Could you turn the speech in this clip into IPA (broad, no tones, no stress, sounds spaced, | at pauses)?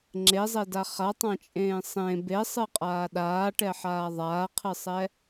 ŋ͡ǁ e zˤ e d a χ a tˤ ã t͡ʃʼ ẽː sˤ ẽ b e sˤ ɨ qʼ aː ɗ aː ʈ ɛ ħ aː ðˤ aː qʰ ɨ sˤ ɛ